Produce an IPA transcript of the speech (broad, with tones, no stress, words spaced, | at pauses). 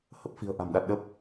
hə˦˥p̚fi̤˨˩ə̯ ʔa̤˨˩m ɗa˨˩t̚ɗə˦˥p̚